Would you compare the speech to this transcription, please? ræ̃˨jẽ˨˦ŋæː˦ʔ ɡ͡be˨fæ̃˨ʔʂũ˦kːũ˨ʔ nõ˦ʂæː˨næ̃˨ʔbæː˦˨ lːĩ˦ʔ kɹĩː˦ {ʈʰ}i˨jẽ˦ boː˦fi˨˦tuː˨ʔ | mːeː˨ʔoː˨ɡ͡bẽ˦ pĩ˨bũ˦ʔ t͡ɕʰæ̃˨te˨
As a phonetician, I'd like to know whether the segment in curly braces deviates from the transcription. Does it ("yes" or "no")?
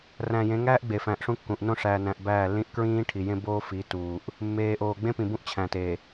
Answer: no